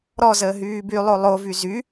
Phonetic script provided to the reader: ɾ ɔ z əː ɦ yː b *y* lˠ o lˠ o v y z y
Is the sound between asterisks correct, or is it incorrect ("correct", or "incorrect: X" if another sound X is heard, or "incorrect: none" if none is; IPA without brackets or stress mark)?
correct